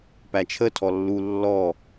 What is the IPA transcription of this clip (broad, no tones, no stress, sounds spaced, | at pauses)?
p æ t͡ʃʰ ə tʰ ɔ lː u lː ɔ